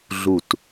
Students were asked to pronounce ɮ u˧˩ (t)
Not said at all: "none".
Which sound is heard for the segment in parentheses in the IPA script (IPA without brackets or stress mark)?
t